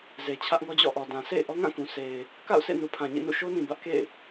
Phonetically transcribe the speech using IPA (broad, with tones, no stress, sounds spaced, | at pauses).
z e˨ t͡ɕʰ ä˦ ʔ ŋ ɔ˦ d͡ʑ ɔ̰˦˨ ʔ ɔ˨ d ã˨ sʰ ḛ˦˨ ɪ̯ ʔ ɔ˦ ŋ ã˦˨ k ũ˨ sʰ e˨ ɪ̯ | k a̰˦˨ ʊ̯ sʰ ḛ˦˨ n u˨ pʰ ã˨ ɲ ḭ˦˨ n ṵ˦˨ ʃ o˦ n ĩ˨ b ä˦ ʔ k ḛ˦˨ ɪ̯